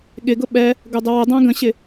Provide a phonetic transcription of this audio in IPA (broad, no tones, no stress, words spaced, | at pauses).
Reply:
ɠɪɡʊ ɓɛ | ɡʊdˤəwədˤæ̃ ɡə̃ɕɪ